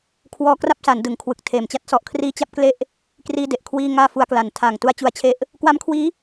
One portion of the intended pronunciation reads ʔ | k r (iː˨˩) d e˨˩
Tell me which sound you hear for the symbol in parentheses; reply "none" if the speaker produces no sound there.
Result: iː˥˩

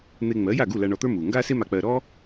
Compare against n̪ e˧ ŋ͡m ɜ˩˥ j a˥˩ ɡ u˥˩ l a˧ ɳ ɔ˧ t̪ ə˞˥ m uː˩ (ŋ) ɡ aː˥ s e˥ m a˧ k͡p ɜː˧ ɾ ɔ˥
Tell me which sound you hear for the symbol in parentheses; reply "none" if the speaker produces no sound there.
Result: ŋ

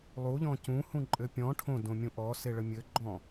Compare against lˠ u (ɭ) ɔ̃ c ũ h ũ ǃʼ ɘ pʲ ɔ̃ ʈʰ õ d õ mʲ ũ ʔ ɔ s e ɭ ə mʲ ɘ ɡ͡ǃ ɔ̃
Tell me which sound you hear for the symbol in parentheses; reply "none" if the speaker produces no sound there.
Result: ʎ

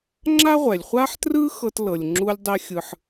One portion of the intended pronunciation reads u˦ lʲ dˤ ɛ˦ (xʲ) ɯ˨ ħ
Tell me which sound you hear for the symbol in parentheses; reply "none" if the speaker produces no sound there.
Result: xʲ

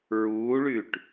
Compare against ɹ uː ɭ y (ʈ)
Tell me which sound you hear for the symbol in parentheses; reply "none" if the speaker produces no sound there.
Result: ʈ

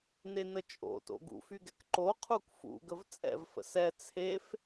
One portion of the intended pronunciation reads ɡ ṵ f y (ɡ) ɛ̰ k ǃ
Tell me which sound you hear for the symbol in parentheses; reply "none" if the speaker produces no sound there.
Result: ɡ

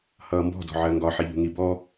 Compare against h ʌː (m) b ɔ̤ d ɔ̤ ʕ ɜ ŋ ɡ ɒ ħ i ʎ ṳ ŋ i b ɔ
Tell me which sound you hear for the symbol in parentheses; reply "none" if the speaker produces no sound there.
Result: m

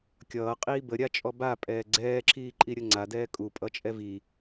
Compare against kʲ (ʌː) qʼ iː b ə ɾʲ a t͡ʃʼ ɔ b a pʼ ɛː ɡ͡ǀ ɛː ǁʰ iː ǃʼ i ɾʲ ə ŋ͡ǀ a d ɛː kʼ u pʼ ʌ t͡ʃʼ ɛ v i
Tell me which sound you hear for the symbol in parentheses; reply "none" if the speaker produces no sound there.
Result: ʌː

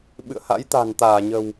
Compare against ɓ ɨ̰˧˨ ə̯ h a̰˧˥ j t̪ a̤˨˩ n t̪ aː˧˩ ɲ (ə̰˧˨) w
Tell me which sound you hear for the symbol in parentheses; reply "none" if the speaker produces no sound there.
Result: ə̤˨˩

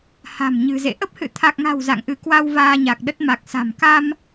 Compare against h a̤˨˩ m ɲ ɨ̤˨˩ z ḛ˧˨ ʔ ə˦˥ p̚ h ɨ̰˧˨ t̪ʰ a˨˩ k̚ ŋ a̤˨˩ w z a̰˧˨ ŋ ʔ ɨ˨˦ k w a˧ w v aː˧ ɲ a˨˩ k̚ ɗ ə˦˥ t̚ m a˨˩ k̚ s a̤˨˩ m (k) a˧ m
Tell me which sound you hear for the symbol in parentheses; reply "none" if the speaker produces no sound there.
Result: k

